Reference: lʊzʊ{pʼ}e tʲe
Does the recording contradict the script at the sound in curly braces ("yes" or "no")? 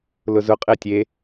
yes